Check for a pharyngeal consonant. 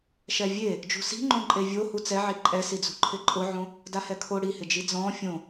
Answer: present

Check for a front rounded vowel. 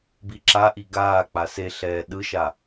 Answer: absent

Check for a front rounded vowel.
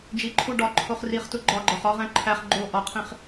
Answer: absent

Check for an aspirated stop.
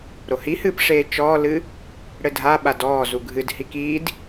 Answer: absent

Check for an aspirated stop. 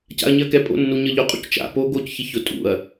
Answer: absent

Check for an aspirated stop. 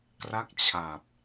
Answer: present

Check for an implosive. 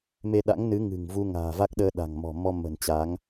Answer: present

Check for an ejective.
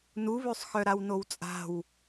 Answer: present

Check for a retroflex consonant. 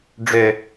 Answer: present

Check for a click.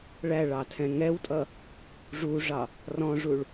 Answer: absent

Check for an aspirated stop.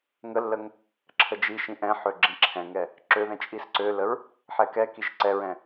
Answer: present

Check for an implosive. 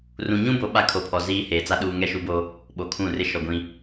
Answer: present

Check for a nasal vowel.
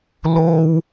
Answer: absent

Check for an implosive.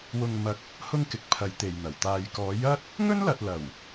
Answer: absent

